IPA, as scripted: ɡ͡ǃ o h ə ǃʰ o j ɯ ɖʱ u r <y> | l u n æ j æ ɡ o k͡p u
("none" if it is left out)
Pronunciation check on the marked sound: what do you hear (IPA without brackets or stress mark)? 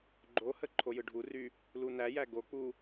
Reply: y